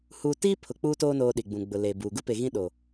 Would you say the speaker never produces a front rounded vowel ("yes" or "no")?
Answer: yes